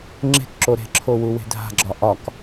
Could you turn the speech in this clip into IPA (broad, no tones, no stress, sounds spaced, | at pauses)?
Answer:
ŋ͡ǁ e̤ k ǁ o ɾ e̤ ǁʰ o w u w e̤ dʱ a̤ ɡ͡ǁ ɒ ʔ ɒ k